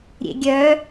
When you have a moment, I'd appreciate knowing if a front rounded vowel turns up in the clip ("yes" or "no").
yes